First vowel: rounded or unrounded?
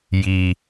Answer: unrounded